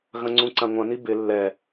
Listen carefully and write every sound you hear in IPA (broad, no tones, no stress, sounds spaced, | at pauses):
ɣ ɐ̃ ŋ͡ǀ ũ ǀ ã ŋʷ ɐ̃ n i b ɪ lː ɛ